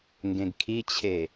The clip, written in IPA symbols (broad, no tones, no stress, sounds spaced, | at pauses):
ŋ ɡ ẽ ɡ kʰ i t͡ɕʰ e